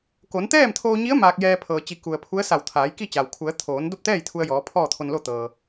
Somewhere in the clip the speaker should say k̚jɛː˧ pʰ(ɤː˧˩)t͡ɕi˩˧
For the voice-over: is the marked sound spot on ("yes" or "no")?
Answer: no